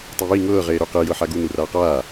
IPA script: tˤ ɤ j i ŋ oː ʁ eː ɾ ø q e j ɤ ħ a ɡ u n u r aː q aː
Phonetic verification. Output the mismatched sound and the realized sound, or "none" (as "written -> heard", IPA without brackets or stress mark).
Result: oː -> ɤː